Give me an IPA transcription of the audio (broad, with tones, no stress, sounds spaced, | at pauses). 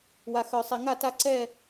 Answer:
w a˨ x œ˨ sˤ e˨ ŋ a˦˨ t a˦ ǀ ɛ˦˨